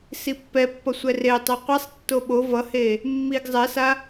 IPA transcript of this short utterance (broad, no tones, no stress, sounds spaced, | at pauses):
s i pː ɛ pː ʌ sʷ ɛ r e tˤ ɛ qʷ e sˤ tː o ɓ o v ʌ h e | mː i ɡ zˤ ɛ s a